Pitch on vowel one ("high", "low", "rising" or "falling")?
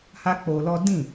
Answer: high